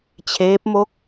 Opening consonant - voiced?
no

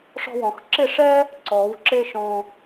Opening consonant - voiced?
no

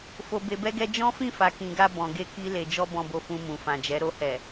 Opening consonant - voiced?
no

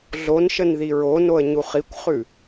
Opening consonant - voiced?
yes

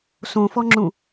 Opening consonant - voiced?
no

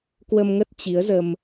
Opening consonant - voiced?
no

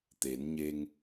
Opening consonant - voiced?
no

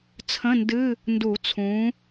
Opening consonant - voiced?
no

